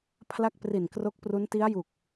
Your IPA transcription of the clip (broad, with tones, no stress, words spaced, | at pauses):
pʰla˥˩k̚pri˨˩nkro˦˥k̚pru˦˥n ti˦˥a̯ju˨˩k̚